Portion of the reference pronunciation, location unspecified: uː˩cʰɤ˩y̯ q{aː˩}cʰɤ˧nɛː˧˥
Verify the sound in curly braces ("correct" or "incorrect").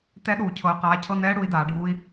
incorrect